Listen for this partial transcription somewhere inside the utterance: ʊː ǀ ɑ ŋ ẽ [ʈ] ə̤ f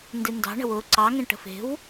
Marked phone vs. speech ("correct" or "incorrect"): correct